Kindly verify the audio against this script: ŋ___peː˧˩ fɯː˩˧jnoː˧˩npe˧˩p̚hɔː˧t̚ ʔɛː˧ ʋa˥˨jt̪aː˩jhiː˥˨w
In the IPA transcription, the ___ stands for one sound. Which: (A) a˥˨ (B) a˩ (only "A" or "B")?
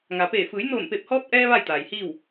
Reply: B